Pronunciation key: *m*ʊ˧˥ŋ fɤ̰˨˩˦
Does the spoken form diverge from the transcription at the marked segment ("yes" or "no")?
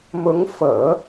no